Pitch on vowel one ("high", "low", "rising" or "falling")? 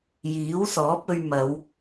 rising